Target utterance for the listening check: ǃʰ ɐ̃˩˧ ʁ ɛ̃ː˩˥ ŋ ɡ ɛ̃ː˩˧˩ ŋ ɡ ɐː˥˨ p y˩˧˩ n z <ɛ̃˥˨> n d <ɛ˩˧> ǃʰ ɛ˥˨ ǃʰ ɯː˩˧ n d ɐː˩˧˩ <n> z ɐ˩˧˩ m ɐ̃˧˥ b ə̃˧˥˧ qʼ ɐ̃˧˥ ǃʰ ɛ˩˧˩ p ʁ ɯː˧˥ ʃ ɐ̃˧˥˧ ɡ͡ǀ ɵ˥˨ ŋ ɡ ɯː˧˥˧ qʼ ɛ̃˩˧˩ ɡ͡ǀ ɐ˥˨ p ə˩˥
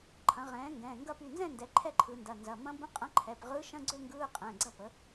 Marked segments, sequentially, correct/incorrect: correct, correct, correct

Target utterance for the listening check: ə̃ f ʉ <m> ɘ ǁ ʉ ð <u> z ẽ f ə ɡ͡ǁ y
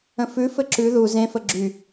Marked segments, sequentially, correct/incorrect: incorrect: f, correct

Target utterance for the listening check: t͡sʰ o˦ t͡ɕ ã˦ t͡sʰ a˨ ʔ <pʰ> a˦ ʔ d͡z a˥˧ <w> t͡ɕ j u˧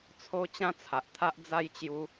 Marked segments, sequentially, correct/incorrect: incorrect: t̪ʰ, incorrect: j

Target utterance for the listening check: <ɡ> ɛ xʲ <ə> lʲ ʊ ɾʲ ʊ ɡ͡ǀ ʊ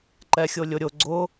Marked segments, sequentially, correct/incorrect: incorrect: ǃ, incorrect: ʊ

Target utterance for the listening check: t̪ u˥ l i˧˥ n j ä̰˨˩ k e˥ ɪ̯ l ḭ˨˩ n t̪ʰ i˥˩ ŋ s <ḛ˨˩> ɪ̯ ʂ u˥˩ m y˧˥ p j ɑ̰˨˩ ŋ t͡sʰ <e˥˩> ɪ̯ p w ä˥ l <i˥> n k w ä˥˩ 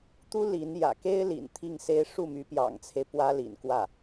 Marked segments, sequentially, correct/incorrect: incorrect: e˥, incorrect: e˦, incorrect: ḭ˨˩

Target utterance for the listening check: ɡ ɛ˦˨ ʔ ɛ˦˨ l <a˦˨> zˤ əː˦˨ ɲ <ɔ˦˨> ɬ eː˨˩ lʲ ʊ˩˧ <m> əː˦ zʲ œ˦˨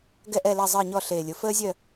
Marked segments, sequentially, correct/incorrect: correct, correct, incorrect: f

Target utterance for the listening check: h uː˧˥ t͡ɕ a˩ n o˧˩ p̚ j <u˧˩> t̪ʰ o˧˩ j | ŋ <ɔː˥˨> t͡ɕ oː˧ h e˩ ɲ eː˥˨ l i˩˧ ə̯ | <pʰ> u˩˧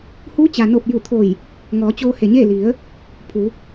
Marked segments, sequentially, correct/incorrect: correct, incorrect: ɔː˩˧, correct

